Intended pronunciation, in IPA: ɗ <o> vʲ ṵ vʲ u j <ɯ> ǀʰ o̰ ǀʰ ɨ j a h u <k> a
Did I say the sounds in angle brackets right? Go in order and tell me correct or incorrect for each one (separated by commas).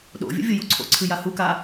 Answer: incorrect, incorrect, correct